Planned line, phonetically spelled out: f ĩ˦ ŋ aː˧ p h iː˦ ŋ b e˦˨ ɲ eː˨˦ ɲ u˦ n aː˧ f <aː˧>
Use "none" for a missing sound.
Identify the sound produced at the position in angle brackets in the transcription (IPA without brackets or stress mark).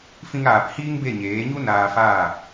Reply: aː˦˨